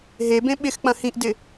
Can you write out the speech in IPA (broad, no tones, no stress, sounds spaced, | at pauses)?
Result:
ɦ e b ẽ ɓ ɪ x k͡p ɐ̃ h ĩ ʔ d ɪ